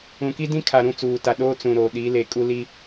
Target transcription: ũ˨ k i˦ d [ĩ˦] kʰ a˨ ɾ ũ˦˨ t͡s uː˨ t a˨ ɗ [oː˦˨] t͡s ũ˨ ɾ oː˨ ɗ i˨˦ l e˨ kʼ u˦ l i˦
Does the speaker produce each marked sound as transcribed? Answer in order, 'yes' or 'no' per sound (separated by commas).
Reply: yes, no